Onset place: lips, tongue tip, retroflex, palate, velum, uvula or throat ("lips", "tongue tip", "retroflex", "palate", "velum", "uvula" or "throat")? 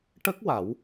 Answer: retroflex